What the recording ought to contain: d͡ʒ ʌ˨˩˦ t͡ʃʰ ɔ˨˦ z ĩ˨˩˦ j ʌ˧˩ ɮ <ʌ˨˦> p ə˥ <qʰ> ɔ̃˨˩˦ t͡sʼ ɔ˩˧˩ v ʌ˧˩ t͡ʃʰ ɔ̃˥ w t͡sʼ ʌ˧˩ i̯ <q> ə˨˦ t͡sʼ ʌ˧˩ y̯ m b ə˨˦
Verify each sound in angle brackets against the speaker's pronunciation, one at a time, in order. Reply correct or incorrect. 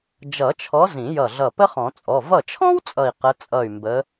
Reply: incorrect, incorrect, correct

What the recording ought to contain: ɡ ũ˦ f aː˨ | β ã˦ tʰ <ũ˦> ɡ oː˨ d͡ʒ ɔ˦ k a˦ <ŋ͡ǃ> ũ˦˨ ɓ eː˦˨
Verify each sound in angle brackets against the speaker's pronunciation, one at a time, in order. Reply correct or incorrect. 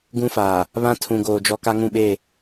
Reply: incorrect, incorrect

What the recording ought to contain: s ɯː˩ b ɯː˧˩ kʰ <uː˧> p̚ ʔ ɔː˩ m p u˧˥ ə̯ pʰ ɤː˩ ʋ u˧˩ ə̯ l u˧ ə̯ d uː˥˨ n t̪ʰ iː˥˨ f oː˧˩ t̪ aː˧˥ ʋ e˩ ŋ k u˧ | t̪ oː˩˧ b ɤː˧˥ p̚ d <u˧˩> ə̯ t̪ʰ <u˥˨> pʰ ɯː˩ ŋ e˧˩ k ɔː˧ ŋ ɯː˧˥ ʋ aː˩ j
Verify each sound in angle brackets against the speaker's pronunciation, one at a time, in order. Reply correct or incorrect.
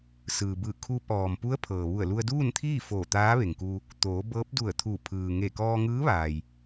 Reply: correct, correct, incorrect

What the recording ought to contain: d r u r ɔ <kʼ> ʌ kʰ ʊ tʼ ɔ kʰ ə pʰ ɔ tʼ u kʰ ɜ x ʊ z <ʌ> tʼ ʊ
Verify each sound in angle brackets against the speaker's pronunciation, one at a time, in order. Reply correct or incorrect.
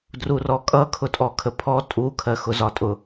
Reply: correct, incorrect

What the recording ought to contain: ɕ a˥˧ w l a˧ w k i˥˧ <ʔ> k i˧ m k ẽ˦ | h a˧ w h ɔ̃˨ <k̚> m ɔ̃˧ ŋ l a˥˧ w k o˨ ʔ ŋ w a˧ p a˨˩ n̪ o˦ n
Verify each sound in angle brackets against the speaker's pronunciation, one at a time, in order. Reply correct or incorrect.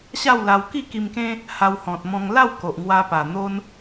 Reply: incorrect, incorrect

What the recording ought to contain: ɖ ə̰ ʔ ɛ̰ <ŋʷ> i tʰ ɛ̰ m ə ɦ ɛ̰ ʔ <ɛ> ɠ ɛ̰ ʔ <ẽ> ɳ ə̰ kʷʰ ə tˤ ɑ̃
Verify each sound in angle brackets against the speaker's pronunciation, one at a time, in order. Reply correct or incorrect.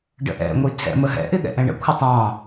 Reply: correct, incorrect, incorrect

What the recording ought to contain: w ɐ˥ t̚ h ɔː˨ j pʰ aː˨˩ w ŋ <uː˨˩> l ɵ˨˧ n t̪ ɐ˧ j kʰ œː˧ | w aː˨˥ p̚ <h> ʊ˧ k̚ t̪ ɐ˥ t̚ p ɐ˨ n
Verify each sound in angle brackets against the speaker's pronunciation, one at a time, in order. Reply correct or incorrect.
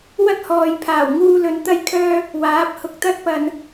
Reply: incorrect, correct

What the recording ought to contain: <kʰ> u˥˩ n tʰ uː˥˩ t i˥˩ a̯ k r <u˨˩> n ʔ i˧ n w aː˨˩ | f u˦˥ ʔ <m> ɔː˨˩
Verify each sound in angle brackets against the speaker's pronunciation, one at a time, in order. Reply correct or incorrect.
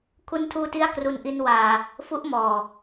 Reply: correct, incorrect, correct

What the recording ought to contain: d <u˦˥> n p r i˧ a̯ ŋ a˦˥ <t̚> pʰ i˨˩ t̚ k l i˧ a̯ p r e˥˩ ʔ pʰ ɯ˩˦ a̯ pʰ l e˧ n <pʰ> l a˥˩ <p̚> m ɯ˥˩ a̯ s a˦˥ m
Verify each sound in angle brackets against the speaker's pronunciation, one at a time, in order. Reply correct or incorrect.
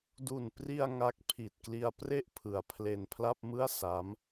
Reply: incorrect, incorrect, correct, correct

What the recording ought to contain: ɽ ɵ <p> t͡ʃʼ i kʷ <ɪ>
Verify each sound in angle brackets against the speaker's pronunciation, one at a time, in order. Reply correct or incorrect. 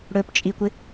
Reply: correct, correct

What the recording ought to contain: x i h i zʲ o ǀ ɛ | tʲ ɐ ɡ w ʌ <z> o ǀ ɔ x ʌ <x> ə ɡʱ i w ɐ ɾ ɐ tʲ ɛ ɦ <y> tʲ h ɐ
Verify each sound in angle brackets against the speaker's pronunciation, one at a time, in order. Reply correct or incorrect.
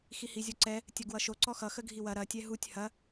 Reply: incorrect, correct, incorrect

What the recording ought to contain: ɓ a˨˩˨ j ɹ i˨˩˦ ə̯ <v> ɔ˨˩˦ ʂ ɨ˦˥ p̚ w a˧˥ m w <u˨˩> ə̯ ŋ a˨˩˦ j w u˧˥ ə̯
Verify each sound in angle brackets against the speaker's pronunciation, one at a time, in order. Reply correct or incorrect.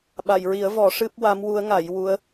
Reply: correct, incorrect

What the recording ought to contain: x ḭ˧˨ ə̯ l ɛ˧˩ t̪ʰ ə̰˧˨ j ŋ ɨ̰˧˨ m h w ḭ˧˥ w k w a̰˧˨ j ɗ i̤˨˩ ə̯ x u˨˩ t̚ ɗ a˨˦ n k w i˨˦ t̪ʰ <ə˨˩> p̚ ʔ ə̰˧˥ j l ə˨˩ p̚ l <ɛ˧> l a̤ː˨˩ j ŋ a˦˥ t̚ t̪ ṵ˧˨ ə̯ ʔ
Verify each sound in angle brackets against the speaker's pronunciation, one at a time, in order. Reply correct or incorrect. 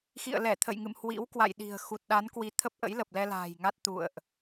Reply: incorrect, correct

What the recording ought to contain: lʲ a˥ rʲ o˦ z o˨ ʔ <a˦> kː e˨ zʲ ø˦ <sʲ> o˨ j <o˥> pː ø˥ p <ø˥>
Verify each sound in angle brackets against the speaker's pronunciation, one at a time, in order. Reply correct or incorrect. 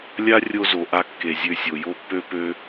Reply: correct, correct, correct, incorrect

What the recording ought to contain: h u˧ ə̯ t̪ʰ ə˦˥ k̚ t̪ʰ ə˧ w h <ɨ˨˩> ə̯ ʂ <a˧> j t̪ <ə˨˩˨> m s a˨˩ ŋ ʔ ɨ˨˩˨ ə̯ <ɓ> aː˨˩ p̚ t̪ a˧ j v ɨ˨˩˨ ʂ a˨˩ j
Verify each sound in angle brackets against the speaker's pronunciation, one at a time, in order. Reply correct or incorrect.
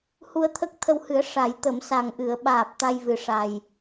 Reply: incorrect, incorrect, correct, correct

